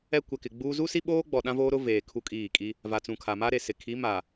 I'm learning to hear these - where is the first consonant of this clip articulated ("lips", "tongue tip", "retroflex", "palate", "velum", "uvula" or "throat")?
velum